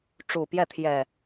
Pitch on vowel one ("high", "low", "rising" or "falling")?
low